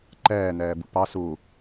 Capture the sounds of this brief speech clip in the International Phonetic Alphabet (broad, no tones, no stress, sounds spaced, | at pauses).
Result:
ǃ ɛː n ɛː b ṵ p ɑ s u